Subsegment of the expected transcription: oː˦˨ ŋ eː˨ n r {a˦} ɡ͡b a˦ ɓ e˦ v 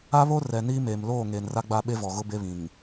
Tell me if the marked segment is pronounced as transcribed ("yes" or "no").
yes